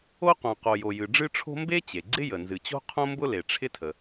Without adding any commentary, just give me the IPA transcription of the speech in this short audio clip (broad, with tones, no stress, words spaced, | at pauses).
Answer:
o˥qõ˩qo˩jo˩ jɨ˩ɖ͡ʐɨ˥ʈ͡ʂʰo̤˥ mbe˥t͡ɕe˩ɡ͡ǀɪ˥jə˩ nzɨ˩t͡ɕo̤˥qʰõ˥mbʊ˥ le˩ʈ͡ʂʰɪ˥tʰə˩